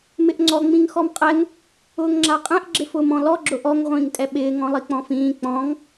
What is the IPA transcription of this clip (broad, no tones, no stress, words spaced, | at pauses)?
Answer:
mɪʔŋ͡ǀɔ ŋ͡mĩŋxɔmqʼɛŋ | ʊːŋŋ͡ǁaqʼɛ̃ʔ ɡ͡ǁɪfʊːmɔ̃lɔ ɡ͡ǁʊʔɔŋ ʁʷĩːŋtʼɛɓɪː ŋɔ̃lˠik͡pɔ̃fĩː k͡pɔ̃ŋ